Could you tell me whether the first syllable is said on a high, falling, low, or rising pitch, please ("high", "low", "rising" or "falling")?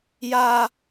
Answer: high